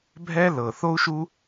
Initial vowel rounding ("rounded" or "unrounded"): unrounded